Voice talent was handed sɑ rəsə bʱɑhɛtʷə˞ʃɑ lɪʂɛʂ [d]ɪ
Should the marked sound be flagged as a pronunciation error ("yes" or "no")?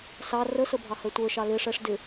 no